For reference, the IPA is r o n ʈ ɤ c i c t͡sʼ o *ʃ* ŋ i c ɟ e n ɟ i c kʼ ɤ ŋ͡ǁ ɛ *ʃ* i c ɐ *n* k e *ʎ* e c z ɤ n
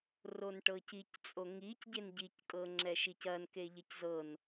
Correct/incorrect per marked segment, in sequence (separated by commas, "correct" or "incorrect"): incorrect, correct, correct, correct